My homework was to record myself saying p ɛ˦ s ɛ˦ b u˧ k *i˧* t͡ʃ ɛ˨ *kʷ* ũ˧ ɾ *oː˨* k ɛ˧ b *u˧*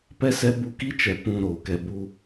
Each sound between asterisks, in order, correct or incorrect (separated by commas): incorrect, incorrect, correct, correct